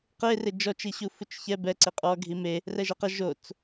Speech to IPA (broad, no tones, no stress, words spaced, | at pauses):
qe red͡ʒɔt͡ʃi ɕufut͡ʃçɛ bɛǀe qʼɔ ɡʱime | rɛʒɐqɐ ʒot͡s